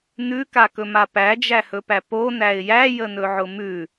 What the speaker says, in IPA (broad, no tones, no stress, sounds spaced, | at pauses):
n ʉ k a k ɵ m a p æ d͡ʒ æ h ɵ p æ p o n æ ɪ̯ j æ j ə n ɵ ʕ ʊ m ʉ